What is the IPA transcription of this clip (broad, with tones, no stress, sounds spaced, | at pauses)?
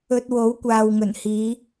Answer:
ɵ˧ t̚ w o˨˥ w kʷ aː˨ w ŋ ɵ˨˩ n h iː˨˧